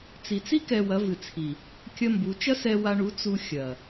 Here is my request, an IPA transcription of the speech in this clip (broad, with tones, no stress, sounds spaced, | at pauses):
t͡s i˨ t͡s i˦ k ɛ˧ w ɐ˨˦ v ɨ˨ t͡sʰ i˨ | kʲ ɐ˦ m b u˨˦ t͡ʃ ɐ˦ s ɛ˧ w a˧ ɳ u˨˦ t͡s u˧ xʲ ɐ˨